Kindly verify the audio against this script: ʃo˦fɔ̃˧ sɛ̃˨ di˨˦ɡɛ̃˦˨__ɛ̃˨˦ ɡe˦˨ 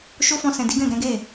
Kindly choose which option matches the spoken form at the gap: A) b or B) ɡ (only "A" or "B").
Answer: B